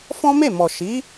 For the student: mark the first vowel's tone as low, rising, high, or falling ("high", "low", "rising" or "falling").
high